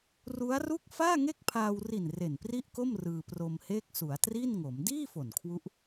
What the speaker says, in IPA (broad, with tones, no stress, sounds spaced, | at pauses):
r u˦˥ a̯ r u˥˩ k̚ f aː˥˩ ŋ e˥˩ k̚ pʰ aː˧ w r i˨˩ n r e˨˩ n p r i˥˩ ʔ k o˥˩ m r ɯː˧ p r o˧ m h eː˥˩ k̚ s u˩˦ a̯ t r i˥˩ n ŋ o˩˦ m d iː˥˩ f o˨˩ n kʰ w u˦˥ ʔ